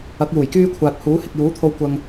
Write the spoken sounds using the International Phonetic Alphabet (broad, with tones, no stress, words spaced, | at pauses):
ɐ˨˥k̚juː˨˩jkyː˥ kʷʰaː˨t̚huː˨˥hɪ˨k̚ juː˨˥t̪ʰo˧w kʷɐ˨ŋ